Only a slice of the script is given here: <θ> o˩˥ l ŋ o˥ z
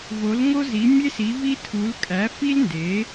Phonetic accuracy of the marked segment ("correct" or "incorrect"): incorrect